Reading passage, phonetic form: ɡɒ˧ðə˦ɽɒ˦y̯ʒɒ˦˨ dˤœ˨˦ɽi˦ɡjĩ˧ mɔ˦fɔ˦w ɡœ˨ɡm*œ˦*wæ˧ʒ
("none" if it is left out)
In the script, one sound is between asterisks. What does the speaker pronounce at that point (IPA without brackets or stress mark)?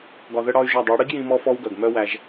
œ˦